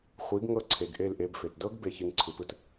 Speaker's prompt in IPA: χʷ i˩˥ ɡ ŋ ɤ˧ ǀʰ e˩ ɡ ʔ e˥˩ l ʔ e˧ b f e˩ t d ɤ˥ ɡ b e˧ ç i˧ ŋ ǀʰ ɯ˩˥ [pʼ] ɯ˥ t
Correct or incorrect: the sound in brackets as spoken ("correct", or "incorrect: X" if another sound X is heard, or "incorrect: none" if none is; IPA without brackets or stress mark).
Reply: incorrect: p